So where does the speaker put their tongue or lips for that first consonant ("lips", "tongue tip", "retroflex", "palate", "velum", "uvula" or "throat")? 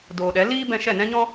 tongue tip